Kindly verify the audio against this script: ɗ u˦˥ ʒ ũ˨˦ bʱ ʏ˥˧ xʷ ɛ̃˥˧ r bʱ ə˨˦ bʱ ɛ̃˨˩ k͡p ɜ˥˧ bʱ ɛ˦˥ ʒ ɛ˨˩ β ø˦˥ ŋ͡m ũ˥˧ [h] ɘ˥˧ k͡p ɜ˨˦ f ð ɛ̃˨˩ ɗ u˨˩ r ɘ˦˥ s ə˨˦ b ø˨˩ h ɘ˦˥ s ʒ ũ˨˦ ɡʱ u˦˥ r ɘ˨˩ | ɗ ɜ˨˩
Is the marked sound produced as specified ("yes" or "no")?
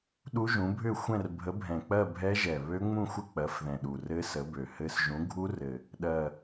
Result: no